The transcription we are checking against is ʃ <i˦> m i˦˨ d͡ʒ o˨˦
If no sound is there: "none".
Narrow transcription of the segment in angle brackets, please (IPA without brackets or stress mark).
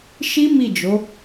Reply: i˦